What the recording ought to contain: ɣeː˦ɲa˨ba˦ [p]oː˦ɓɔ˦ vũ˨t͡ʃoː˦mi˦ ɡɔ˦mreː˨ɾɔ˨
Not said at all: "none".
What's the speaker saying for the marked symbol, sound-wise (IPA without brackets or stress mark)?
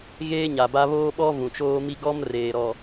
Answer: β